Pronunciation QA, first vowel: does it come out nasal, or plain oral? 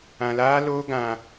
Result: nasal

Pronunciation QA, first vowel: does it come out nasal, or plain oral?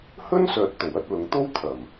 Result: oral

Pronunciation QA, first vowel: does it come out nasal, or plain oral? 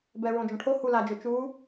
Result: oral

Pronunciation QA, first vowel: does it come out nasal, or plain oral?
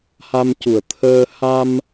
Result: oral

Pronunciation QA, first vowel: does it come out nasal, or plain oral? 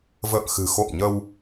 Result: oral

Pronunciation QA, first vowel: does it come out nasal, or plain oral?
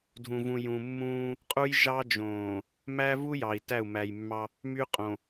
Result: nasal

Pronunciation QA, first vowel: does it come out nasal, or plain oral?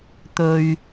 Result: oral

